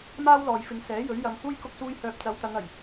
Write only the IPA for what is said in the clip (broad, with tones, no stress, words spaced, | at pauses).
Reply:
maː˥wlɔː˨jfɪ˨˧ŋsɛː˨˥ jɵ˨˥ɥjɐ˨˧mhuː˥j kʊ˥k̚suː˥jhœː˧p̚ t͡sɐ˨˧wt̪ɐ˨˧ŋɐ˨˩j